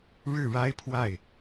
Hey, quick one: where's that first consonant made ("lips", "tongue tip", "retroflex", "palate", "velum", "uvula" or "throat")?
retroflex